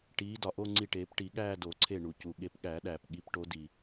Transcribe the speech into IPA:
ʈiː˨˦ dɒ˩ʔo˥˧ŋ͡ǀi˧˩ʈeː˨˩˦p ʈi˨˩˦ɠæː˥˧ do˨˩˦ǀʰe˧˩ ɳu˩ cu˩ ɠe˨˦pɠæ˨˩˦ɗæː˩p ɠi˨˦pʈo˨˦di˩

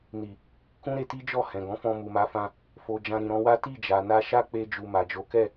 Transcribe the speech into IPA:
ni˨ | kũ˦ ɾe˧ti˦d͡ʒɔ˦˨ hɛ̃˨ɡɔ̃˨˦fɔ̃˧ mu˨ma˨˦fã˧ | fo˨ d͡ʒã˧ɾĩ˨ɾɔ̃˨˦wa˦ ti˦˨d͡ʒa˨na˧ ʃa˦k͡pe˧d͡ʒu˨ ma˨d͡ʒo˨˦kɛ˦˨

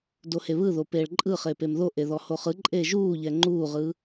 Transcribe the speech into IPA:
doheβɯðo peːɭǃʼɯ χepemðo ʔeðɔhoχɯ ǃʼeːʒuːʎɛ ŋ͡ǃuːʁɯ

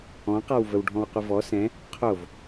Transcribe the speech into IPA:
ɔ̃qawvəwɖʱɔ̃w qʷəvɔ sɛ̃ | qʰov

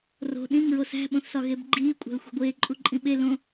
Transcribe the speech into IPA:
ro̤ ɗĩŋɹo sæ̤ ɓõθsɒɣebɡ͡ǃiː kʷʼæ̤lxʷe̤ɡʷeː ǃʼuǃʼĩɓe lõ

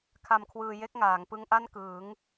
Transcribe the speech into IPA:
kʰa˧mkʰwɯː˧je˥˩k̚ŋaː˩˦ŋ pɯ˦˥ŋʔa˥˩nkɯː˩˦ŋ

